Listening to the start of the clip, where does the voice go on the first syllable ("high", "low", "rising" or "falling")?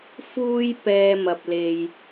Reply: high